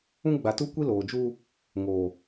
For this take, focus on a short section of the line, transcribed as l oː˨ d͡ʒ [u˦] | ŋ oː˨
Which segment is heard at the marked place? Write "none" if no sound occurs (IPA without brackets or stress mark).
u˦